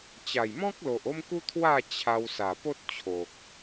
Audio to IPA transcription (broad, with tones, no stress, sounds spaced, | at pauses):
t͡ɕ a˨˩ j m ɔ̃˦ k̚ l o˨ ʔ o˦ m k u˦ t̪ʰ w a˥˧ t͡ɕʰ a˧ w s a˨˩ p o˦ t̚ t͡ɕʰ o˨ k̚